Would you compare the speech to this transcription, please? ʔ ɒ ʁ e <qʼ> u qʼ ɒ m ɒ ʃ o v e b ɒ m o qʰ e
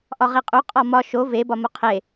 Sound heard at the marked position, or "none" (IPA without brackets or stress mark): qʼ